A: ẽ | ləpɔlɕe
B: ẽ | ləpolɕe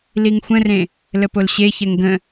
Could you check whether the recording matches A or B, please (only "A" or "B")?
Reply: B